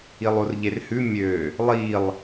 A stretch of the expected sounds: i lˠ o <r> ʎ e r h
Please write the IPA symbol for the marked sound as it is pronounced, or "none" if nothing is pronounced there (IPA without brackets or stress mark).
r